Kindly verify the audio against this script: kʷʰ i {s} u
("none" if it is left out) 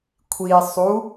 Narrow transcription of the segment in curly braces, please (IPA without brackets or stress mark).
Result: sˤ